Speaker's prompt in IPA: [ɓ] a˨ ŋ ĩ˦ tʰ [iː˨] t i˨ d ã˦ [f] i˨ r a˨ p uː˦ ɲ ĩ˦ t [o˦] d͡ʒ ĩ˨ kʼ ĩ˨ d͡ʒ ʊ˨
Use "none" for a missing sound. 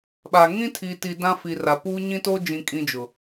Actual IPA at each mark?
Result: ɓ, i˨, f, o˦

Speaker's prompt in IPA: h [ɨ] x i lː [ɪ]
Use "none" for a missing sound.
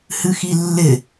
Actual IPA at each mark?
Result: ɨ, ɪ

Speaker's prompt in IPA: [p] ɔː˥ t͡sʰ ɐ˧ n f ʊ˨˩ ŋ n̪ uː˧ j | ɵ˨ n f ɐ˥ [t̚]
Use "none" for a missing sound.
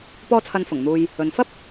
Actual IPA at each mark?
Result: p, p̚

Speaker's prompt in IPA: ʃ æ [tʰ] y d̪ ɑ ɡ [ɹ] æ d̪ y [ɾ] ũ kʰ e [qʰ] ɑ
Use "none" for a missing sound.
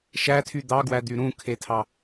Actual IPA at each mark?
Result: tʰ, w, ɾ, tʰ

